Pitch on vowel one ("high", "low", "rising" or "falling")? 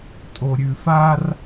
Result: low